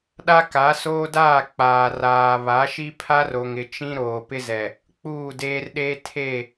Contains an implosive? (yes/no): yes